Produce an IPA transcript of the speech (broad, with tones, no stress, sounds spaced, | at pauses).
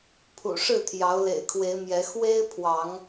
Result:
pʰ ṵ˨˩ ʂ ɻ̩˥˨ t̪ʰ j ɑ˨˦ ʊ̯ l ḛ˨˩ ɪ̯ kʰ w e˨˦ ɪ̯ m j ɛ˨˦ x w e˦ ɪ̯ pʰ w ɑ˨˦ ŋ